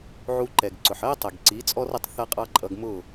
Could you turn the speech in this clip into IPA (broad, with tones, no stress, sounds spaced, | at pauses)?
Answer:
ʕ u˧ ǃ ɛ˩ ɡ ǀ ʊ˩ ħ ɜ˥ tˤ ɛ˩ ɡ ǀ i˩˥ t͡sʼ ɔ˥ r ə˩˥ tˤ θ ʌ˥ qʼ ɑ˥ ǃʼ ʌ˧ ɡ m ʊ˥˩